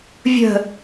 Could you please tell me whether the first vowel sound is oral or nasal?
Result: oral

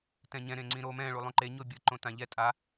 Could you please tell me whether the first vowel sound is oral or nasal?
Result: nasal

